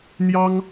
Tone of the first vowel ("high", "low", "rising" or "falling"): high